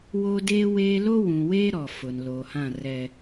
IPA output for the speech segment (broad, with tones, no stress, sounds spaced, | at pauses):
w o˦ d eː˦ w eː˦ l o˦ w ũ˨ w eː˦ ɾ ɔ˨ f ʊ˨ n l oː˨ h ã˦˨ r ɛ˨